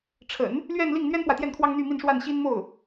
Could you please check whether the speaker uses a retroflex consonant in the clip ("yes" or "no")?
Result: yes